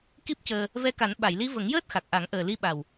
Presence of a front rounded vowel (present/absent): absent